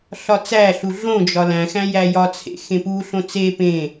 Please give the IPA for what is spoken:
ɬ ɒ t͡s æ ɬ u ɮ õ d͡ʒ ɒ l æ̃ x æ̃ j æ j ɒ t͡sʰ ḛ x ẽ p u ɬ õ t͡s e p ẽ

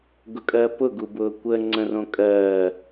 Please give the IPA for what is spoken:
ɡ ʊ kʼ ɜ p ʊ ɡ u b ʊː kʷ ə ŋ͡ǀ ə̃ r õ kʼ ɜː

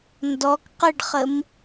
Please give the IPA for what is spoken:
n d ɔ k q ə ɖ χ ə m

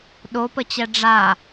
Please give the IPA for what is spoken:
ɗ o p ə t͡ɕ ɛ ɖ͡ʐ a

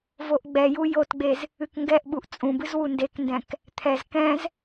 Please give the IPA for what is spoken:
v o ʔ ɡ͡b ɛ j u j o t ɡ͡b e z | ɨ k ŋ ɡ ɛ ʔ ɓ u ʔ t͡sʼ ũ b ɨ z w u n d e k n d ɛ̃ k | t̪ʰ ɛ z k ɛ̃ z

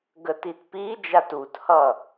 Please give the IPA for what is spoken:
ɡ ə t i t p i d͡ʒ a t u t h ʌ

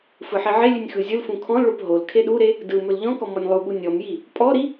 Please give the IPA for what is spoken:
f ɯ ħ i ʕ e lʲ ʉ nʲ x ɯ zʲ ɯ l f ũ kʰ ɔ̃ l ɭ o p ɦ o l kʰ e ɗ u ɾ e | d ɯ m ɵ l ʎ ɔ̃ k ɔ m ɔ nʲ lˠ u ɠ u nʲ ɔ m j i | pʼ ɔ ɾ i

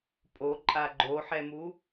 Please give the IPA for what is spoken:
pʼ o ǃʼ a ɡ͡ǃ o ħ ɛ m u

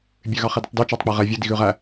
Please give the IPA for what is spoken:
bʲ ø ɣ ɑ χ i d ɵ tˤ d y t͡ʃ ɑ tˤ k͡p æ ʁ ɛ vʲ ɵ d i ɣ ʉ ʁ æ

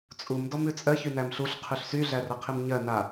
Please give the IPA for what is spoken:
t͡sʼ u m d ɔ m ʉ t͡sʼ ɜ ç y n æ m ɬ u ɬ qʰ ʉ ɬ s y ɮ æ r ə qʰ i m ɲ ɜ n a

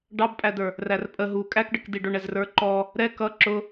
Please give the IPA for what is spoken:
ɖ ɑ b pʼ æ d ə˞ | r æ r pʼ ə ɦ u kʼ æ k ɖ ə k d i ɖ ʊ ɳ ɛ z r ə˞ ǃ ɔ | ɾ ɛ k ʌ ǁ ʊ

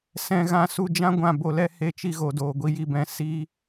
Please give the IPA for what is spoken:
s ɛ̃˧ ɣ ã˧ s u˧ d͡ʒ ã˦ ɡʷ ã˧ b o˧ l ɛ˦ h e˧ t͡ʃ i˧ ɣ o˨ d oː˨ ɡʷ i˧ j i˧ b ɛ̃˧ s i˦

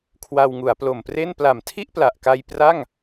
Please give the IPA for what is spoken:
kʰ w a˧ w ŋ u˩˦ a̯ p l o˨˩ m p r e˥˩ n p l a˨˩ m tʰ i˥˩ ʔ p l a˨˩ ʔ k a˧ j p r a˥˩ ŋ

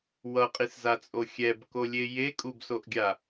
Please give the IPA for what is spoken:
w ʌ qʼ i s z a t͡sʼ o xʲ ɛ b k o lʲ e j e kʼ u b s o ʔ ɡʲ a

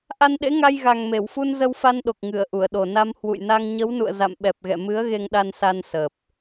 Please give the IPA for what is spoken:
ʔ a˧ n ɗ ḛ˧˥ ŋ a˧ j ɣ a˨˩ ŋ m e˧˩ w f u˧ n z ə˧ w f a˧ n ɗ o˨˩ k̚ ŋ ɨ˧˩ ə̯ ʔ u˧˩ ə̯ ɗ o˨˩ n a˧ m h w ṵ˧˨ j n a˧ ŋ ɲ ə˨˦ w n ṵ˧˨ ə̯ z a̰˧˨ m ɓ ɛ˨˩ p̚ ɣ ɛ̰˧˨ m ɨ˨˦ ə̯ ɣ e˧ ŋ ɗ a˧ n s a˧ n s əː˨˩ p̚

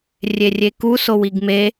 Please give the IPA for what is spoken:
rʲ e rʲ e k u s o w i ɡ m e

